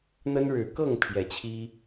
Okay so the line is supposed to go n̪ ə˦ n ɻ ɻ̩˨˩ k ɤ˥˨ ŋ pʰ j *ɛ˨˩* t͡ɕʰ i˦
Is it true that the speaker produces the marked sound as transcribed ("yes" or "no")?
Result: yes